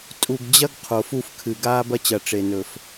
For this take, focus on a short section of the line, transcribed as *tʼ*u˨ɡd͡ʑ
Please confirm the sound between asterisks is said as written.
yes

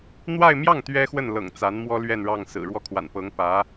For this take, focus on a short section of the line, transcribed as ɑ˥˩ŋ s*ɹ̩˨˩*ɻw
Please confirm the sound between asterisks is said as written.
yes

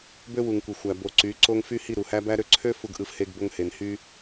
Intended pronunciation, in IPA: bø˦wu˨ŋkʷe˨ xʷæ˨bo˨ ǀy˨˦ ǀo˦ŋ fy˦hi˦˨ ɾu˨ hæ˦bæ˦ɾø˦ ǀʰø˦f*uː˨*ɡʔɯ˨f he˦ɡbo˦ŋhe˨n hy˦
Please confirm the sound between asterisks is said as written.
no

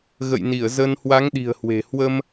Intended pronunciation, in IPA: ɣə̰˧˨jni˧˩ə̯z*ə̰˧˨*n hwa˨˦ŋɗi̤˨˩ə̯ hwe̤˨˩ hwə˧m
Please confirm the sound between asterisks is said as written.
no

